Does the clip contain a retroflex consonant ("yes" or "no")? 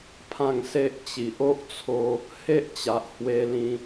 no